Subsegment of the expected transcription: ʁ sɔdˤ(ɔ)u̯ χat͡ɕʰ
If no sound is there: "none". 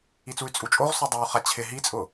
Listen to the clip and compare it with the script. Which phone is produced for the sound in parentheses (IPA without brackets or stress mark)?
o